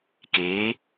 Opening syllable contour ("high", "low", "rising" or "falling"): rising